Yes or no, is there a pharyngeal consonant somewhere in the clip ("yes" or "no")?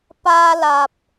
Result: no